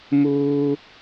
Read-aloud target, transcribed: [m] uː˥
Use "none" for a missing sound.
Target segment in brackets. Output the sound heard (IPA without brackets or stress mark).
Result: m